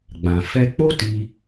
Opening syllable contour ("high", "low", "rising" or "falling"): low